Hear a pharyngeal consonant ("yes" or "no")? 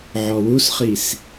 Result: yes